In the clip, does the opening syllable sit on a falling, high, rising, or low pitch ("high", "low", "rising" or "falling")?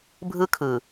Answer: high